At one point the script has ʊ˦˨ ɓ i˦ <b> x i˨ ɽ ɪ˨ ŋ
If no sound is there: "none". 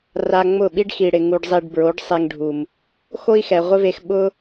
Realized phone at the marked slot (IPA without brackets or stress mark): ɖ